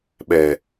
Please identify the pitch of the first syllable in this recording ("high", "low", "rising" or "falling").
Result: low